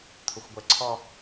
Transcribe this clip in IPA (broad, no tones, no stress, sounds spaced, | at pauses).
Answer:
t̪ʰ ʊ xʷ ɡʷ ɛ ǀʰ ɔ